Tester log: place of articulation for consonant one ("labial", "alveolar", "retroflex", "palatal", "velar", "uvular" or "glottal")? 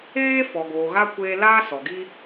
labial